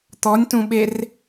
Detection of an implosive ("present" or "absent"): present